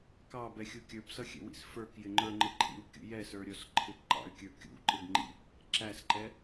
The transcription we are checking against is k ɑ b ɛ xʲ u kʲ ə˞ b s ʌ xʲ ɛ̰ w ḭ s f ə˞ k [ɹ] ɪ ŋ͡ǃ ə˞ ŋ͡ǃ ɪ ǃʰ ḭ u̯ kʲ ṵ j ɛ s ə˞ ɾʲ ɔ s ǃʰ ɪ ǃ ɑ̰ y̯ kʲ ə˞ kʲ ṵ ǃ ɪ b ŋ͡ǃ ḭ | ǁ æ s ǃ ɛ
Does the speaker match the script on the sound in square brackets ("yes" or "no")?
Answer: no